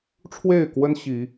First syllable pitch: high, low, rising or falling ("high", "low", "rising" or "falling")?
falling